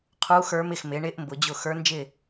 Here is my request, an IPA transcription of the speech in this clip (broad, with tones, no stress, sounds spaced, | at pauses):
qʰ uː˧˥ x ə˞˧˥ m ɪ˧˩ x m ɪː˩˧ ɳ ɪː˧˥ ʔ m b ʊ˩˧ d͡ʑ ʊ˥˩ x ə˞˧˥ n d͡ʒ ɪ˥˩